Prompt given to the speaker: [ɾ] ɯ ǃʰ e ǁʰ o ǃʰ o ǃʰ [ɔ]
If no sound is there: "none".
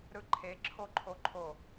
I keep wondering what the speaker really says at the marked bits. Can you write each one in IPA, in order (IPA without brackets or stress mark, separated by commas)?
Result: ɾ, o